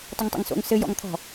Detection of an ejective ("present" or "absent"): absent